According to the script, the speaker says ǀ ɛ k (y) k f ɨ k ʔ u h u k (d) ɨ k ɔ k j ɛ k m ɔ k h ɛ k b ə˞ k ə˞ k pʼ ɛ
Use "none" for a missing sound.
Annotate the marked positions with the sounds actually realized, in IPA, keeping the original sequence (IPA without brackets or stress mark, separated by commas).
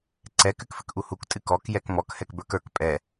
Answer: ɨ, tʼ